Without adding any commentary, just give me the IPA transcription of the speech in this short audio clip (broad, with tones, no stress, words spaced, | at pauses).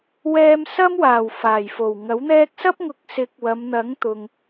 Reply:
wɛː˧msɐ˥mwaː˨˩w faː˨˩jfo˨˩wŋɐ˨˥wn̪ɛː˥k̚ sɐ˥p̚ŋʊ˨˥k̚ sɪ˨˥k̚ wɐ˨˧mn̪ɐ˨˥ŋt̪ʊ˨ŋ